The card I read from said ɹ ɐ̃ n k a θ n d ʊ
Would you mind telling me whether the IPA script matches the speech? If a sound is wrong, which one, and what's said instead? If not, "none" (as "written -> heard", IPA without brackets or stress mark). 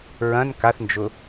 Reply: d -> d͡ʒ